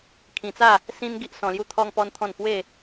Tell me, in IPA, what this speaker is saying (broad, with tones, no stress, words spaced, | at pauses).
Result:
kʰĩ˧t͡sa˥˧ | sĩ˦n ɡi˦ʔsɔ̃˧ lju˥˧t̪ʰɔ˦ŋpɔ˦nt̪ʰɔ̃˥˧n pwe˥˧